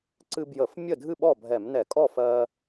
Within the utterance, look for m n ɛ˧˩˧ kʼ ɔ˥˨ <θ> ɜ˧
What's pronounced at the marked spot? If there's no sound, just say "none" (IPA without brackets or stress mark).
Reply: f